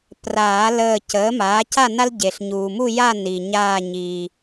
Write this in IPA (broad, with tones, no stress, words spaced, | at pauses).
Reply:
praː˨˩˦ ləː˧˩cəː˩˥maː˩˥ ca˥˨na˦l ɟe˩ɬɲuː˩mu˥˨ja˥˨ ni˩ɲaː˧˩ɲiː˩